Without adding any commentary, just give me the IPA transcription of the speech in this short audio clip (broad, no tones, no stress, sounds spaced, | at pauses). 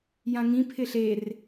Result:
j ã ŋ ĩ pʰ ɪ ɬ e r